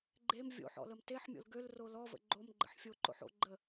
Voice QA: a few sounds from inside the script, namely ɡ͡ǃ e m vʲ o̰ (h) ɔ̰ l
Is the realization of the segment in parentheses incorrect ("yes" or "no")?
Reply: yes